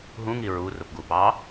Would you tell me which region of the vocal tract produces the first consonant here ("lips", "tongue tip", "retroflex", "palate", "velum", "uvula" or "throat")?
throat